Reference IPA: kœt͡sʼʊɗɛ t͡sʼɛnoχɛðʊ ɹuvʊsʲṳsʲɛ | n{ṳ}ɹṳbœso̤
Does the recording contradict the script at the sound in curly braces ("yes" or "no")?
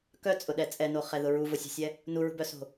yes